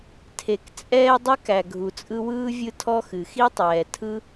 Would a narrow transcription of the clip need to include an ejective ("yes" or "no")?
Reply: yes